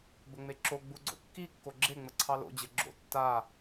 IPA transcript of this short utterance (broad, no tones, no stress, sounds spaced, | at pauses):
b ə ŋ͡m e ǁ o ɡ͡b u ɡ͡ǀ o̰ kː i kː o ɡ͡ǁ e ŋ͡m ə ǀʰ ɑ l o̰ d͡ʑ ɘ ɡ͡ǁ o̰ tː a